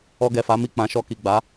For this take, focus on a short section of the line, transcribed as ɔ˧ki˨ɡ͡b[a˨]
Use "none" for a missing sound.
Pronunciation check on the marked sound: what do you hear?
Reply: a˨˦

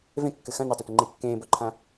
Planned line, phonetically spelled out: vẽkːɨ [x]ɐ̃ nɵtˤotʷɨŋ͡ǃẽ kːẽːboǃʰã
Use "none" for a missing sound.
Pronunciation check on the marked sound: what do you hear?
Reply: x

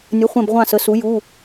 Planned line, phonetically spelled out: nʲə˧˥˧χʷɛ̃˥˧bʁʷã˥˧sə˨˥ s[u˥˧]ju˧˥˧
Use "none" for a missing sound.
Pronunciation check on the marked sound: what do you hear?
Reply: u˨˥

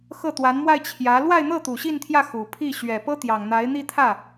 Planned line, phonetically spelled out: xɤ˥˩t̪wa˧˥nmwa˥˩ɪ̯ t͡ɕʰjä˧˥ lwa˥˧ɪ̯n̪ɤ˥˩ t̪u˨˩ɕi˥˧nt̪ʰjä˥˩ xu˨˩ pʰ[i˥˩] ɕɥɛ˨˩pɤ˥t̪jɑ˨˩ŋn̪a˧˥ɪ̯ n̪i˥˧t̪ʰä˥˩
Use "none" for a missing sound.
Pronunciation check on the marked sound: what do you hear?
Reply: i˥˩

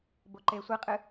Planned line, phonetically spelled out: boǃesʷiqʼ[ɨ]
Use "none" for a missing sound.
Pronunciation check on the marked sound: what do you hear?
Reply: ɨ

